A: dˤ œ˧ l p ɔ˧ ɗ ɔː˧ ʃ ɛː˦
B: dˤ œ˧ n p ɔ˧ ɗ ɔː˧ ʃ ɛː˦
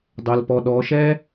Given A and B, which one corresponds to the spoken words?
A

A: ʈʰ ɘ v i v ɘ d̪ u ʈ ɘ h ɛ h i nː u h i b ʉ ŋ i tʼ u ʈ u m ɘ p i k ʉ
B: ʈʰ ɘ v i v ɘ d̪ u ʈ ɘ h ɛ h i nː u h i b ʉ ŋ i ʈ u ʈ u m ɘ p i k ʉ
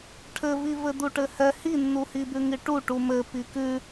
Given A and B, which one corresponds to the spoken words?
B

